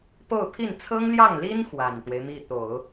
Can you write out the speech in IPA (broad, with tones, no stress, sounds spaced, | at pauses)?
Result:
p o˥˧ ʊ̯ pʰ i˥˩ n t͡sʰ ɤ˥ ŋ l j ɑ˥˩ ŋ l i˥ n x w a˨˩ n t̪ w e˦ ɪ̯ m i˥˩ t̪ o˨˩˦ ʊ̯